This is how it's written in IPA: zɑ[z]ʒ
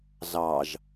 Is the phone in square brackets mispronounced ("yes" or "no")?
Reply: yes